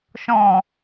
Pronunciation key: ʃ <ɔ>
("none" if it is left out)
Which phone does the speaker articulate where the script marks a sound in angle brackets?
ɔ̃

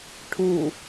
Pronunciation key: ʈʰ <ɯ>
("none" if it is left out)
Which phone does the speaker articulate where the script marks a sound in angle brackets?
u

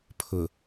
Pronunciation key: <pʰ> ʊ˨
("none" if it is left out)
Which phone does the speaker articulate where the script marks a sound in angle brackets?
pʰ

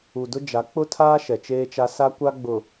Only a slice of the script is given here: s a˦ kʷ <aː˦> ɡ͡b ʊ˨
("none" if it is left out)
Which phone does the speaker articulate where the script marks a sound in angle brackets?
a˦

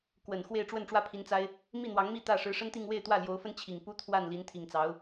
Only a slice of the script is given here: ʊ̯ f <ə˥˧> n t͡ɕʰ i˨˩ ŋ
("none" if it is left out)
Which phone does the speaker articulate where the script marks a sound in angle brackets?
ə˥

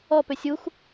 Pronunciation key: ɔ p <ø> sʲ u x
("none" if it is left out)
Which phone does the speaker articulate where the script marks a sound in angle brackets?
ø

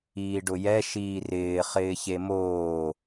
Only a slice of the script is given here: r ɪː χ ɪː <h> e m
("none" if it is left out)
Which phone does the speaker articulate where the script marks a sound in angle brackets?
ç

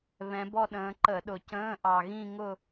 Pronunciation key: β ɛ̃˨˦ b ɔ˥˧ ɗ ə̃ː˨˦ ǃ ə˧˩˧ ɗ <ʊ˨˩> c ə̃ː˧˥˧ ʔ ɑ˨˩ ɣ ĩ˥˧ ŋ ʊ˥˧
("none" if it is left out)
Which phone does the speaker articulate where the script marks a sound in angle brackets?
ʊ˨˩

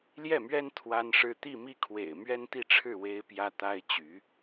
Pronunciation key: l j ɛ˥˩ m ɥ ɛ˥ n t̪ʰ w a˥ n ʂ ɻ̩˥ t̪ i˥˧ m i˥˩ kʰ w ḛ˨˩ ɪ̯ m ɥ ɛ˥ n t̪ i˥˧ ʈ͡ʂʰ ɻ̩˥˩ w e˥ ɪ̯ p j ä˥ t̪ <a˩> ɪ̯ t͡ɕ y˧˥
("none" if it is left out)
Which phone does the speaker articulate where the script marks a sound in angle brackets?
a˥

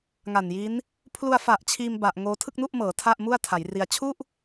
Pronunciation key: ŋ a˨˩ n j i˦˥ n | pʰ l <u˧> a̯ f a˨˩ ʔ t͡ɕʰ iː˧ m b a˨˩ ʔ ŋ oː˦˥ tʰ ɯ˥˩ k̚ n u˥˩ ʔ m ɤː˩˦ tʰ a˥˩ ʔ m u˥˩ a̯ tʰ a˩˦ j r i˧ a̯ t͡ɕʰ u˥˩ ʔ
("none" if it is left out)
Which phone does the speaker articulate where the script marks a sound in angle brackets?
u˧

